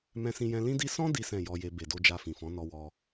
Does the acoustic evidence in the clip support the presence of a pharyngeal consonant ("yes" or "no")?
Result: no